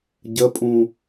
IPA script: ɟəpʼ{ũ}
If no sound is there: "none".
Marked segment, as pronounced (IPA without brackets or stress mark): ũ